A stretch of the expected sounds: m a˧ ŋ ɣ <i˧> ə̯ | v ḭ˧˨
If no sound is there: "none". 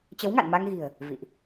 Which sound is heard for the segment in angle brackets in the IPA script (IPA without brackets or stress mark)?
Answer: i̤˨˩